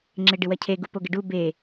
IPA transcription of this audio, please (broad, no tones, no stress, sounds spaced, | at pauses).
ŋ͡ǁ ɪ ɖ ɪ w ɐ cʰ e ɡ u p o ɡ ɪ ɖ u b e